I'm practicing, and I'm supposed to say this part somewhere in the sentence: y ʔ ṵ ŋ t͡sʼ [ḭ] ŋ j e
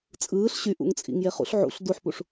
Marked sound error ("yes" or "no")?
no